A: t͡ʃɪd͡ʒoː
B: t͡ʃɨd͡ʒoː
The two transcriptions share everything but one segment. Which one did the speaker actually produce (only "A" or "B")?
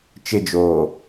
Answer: A